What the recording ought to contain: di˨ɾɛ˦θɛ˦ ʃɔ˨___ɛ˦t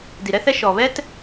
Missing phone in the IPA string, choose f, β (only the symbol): β